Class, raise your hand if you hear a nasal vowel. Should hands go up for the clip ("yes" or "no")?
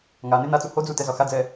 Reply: no